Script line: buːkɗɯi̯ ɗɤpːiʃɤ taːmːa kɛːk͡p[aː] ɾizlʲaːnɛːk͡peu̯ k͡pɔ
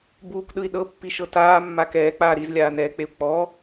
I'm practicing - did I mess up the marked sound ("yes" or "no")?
no